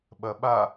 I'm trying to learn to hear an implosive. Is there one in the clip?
yes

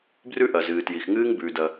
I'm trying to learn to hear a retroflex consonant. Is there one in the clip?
no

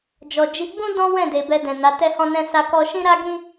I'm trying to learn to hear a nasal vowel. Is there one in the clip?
yes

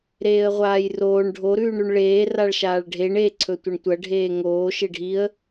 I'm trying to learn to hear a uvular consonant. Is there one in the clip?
yes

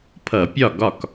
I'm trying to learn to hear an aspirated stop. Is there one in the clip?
yes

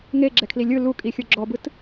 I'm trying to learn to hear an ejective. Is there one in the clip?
yes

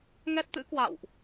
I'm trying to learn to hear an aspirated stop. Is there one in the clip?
no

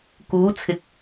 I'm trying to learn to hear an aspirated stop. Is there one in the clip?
yes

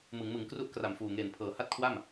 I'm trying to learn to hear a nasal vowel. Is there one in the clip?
no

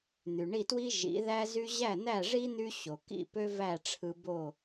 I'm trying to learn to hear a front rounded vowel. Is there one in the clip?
yes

